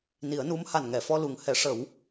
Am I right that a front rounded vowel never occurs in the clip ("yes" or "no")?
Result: yes